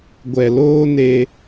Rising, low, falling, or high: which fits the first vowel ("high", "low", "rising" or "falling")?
low